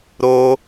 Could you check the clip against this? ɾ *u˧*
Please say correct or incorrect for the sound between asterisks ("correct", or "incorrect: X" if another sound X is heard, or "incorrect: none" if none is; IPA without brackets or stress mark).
incorrect: o˧